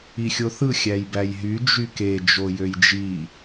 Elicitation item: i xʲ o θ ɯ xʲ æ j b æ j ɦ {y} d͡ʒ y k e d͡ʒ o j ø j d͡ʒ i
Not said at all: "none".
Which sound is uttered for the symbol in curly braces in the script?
y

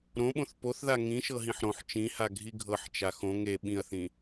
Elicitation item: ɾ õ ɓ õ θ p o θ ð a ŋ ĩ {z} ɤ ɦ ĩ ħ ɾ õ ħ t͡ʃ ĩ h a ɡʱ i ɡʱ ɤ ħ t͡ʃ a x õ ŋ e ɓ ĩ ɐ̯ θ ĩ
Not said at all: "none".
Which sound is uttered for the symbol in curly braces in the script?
ʃ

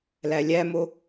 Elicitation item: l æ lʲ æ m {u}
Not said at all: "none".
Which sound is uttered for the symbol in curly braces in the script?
o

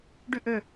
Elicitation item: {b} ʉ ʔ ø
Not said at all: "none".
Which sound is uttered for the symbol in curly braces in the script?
ɖ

